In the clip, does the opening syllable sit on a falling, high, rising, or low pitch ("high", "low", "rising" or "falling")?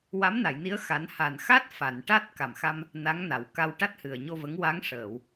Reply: rising